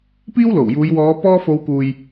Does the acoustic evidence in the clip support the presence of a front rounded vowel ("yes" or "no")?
no